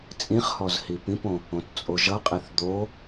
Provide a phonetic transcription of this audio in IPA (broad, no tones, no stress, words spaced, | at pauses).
t͡sʼĩχhɔz hipĩpõ | õtt͡sʼoʒʌqʼiθ d̪o